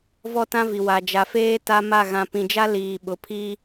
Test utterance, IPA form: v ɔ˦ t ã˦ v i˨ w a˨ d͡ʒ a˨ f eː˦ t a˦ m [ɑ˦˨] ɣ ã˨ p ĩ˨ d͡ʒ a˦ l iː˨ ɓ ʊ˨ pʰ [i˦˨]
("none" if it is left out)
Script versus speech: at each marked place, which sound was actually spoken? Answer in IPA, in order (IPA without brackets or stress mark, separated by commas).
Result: a˦˨, i˦